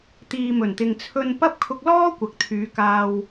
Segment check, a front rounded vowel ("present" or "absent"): present